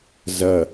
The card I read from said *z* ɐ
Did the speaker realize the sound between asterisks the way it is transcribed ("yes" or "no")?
yes